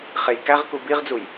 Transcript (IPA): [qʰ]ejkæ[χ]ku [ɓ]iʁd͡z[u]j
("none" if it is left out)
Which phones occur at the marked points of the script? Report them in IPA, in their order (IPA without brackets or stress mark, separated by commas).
χ, ʁ, b, u